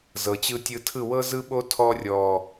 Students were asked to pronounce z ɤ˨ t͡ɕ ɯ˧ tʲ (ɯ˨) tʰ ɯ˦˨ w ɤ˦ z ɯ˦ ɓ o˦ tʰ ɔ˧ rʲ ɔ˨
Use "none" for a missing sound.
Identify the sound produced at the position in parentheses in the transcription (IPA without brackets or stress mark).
ɯ˧